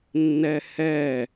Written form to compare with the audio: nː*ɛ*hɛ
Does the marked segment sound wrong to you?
no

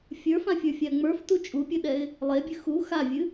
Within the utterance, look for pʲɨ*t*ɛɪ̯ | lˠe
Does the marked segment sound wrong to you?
yes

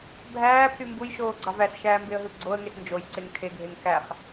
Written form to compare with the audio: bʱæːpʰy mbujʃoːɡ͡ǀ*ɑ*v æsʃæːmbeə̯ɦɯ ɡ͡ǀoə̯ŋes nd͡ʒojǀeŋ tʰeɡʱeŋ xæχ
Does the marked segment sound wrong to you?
no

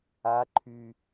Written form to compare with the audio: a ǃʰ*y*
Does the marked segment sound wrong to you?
no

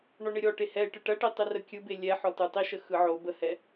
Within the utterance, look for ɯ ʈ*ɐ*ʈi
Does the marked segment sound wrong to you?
no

